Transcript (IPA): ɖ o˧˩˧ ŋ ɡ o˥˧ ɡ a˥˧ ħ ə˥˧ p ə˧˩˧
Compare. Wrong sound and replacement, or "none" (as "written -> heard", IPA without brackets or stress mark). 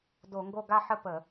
ɖ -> d